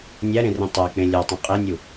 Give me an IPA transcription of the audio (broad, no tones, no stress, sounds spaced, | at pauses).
nʲ æ ɾ ẽ r ĩ tˤ æ k͡p ẽ lʲ ɒ tˤ ĩ qʼ e nʲ u